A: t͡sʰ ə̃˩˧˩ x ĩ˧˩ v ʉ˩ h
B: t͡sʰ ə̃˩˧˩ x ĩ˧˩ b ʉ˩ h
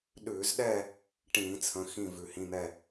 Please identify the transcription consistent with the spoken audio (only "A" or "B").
A